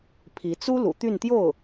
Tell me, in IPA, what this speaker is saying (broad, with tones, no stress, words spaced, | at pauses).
pʰi˧˥ t͡su˥ lṵ˨˩t̪y˥˧nt̪jo˥˩ʊ̯